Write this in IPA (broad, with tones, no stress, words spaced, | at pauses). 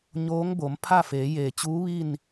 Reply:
ɲoː˧˥ŋbo˩˧m pʰa˥˨feː˩˧jeː˩t͡ɕuː˧˥ ʋi˥˨n